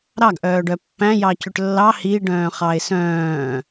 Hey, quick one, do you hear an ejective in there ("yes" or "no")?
no